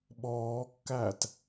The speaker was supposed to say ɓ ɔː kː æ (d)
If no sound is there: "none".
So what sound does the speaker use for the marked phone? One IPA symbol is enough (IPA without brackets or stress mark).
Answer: t